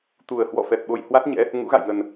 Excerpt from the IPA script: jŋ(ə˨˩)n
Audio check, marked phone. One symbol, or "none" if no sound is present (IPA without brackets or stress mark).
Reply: ə˨˩